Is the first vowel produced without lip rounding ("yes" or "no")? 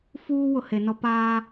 no